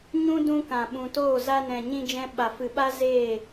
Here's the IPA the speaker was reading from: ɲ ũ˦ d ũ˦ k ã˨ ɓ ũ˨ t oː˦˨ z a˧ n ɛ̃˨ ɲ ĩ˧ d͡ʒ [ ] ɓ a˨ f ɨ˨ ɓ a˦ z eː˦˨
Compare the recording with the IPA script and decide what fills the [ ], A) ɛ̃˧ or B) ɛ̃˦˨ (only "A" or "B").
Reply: A